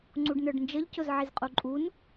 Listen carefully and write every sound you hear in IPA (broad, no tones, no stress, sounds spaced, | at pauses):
ŋ͡ǀ u ɖ n ə˞ ɖ n d͡ʒ ə ʎ c ʊ z ʕ i z qʼ u ǃʼ u n